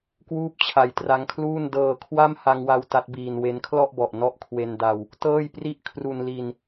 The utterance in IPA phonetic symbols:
k w uː˥˩ p̚ t͡ɕʰ a˧ j t r a˦˥ ŋ kʰ l uː˥˩ n d ɤː˧ kʰ w a˥˩ m h a˧ ŋ w a˧ w t a˦˥ t̚ b iː˧ n w e˦˥ n kʰ l ɔ˥˩ ʔ b ɔ˨˩ ʔ n ɔ˥˩ ʔ kʰ w e˧ n d a˧ w | t ɤː˥˩ j p r i˥˩ ʔ kʰ r u˧ n l i˧ n

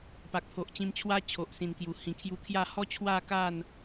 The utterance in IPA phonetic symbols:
p a˨ k̚ pʰ o˨ ʔ t͡ɕ ĩ˧ m t͡ɕʰ w a˦ t͡ɕʰ o˨ ʔ s ĩ˨˩ n k j u˨˩ h ĩ˨˩ kʰ j u˧ kʰ j a˥˧ h ɔ˦ t͡ɕʰ w a˥˧ k a˥˧ n

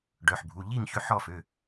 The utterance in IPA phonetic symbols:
ɖ œ˩˧˩ ħ bʱ u˩˧˩ ʎ i˥˨ ŋ ç ø˥˨ ħ ɔ˥˨ f ø˩˧˩

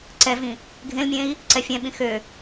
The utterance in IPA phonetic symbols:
ǀ ɛ v ĩ | ɡʱ ẽ l mʲ ẽ i̯ | ǀ ɛ fʲ ɛ̃ ɓ ĩ x ø

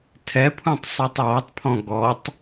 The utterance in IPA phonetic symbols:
tʰ ɛ pʰ ũ tˤ sˤ i tˤ j ɔ tˤ pʰ ɔ̃ ɡ ɔ tˤ

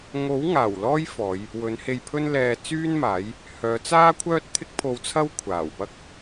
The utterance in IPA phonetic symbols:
ŋ o˨˥ w ŋ aː˨˩ w l ɔː˥ j f ɔː˨˧ j | w ɵ˨˥ n h e˧ j pʰ ɵ˧ n l ɛː˨ t͡s yː˥ n m aː˨˥ j | h œː˨˧ t͡s aː˥ kʷʰ œː˥ t̚ t̪ʰ ɪ˥ k̚ pʰ o˧ w t͡sʰ ɐ˥ w kʷʰ aː˨˩ w p ɐ˥ k̚

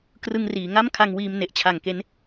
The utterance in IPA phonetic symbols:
k r ɯ˧ ŋ r iː˩˦ ŋ a˥˩ m kʰ a˧ ŋ w iː˧ m n e˨˩ ʔ t͡ɕʰ a˨˩ ŋ k e˦˥ n

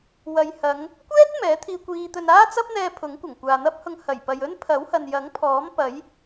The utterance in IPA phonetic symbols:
w ɐ˨ j h ɐ˨˧ ŋ | kʷ ɛː˥ t̚ m ɛː˨˥ t̪ʰ iː˧ kʷ iː˧ t̪ ɵ˧ n aː˥ t͡s ɐ˥ p̚ n̪ ɛː˧ pʰ ʊ˨˥ ŋ kʷ ɐ˨˩ ŋ kʷ aː˨ n̪ ɐ˥ p̚ h ʊ˧ ŋ h ɐ˨˩ j p ɐ˨ j ɵ˥ n pʰ ɐ˨˥ w h ɐ˨ n j ɐ˨˥ ŋ pʰ ɔː˨˥ m p ɐ˨˥ j

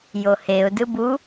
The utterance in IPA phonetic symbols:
j o h e ʊ̯ d ɯ b u

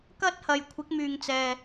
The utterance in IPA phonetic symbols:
k ɐ˥ t̚ h ɐ˨ j kʷʰ ɪ˨˥ k̚ m yː˨ ŋ t͡s ɛː˨

